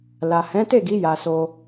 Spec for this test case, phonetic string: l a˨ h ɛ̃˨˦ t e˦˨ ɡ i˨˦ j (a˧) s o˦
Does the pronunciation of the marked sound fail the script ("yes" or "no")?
no